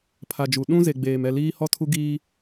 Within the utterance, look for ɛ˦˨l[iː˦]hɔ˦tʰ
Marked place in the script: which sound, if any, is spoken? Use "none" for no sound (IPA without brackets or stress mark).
iː˦